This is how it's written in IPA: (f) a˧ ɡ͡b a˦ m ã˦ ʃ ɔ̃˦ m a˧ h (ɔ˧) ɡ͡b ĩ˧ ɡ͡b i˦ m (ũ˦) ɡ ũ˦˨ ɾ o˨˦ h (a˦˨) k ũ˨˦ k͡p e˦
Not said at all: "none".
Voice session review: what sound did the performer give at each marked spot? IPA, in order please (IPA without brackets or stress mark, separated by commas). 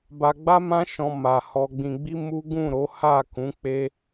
b, ɔ˧, u˦, a˦˨